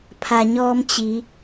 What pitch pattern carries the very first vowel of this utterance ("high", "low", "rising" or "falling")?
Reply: low